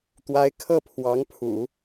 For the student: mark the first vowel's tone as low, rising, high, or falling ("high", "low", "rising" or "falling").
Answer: rising